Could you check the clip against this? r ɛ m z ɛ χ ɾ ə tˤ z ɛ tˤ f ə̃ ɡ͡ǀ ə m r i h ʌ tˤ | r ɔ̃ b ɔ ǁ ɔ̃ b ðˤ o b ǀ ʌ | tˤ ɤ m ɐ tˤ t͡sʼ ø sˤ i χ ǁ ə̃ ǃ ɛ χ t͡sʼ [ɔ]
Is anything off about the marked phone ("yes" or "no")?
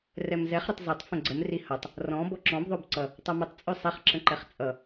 yes